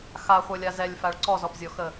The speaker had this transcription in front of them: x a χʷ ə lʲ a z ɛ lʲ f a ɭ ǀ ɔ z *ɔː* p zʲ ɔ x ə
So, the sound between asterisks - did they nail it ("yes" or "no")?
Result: no